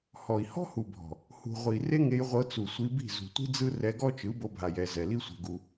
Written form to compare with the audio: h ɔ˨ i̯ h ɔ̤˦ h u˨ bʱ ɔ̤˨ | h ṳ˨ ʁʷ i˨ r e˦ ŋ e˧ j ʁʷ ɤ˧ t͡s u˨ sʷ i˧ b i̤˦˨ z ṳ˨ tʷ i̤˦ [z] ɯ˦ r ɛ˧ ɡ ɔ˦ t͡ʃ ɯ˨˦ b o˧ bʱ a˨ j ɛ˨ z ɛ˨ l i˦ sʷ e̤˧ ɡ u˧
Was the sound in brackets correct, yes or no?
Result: no